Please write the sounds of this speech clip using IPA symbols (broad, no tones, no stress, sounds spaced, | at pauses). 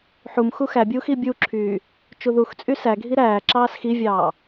ħ u m x u x æ bʲ uː x i bʲ u ǁʰ yː | t͡ʃ u ð u x t͡sʼ y s æ ɡʱ i ɾ æː ǁ ɑː s x i vʲ ɑː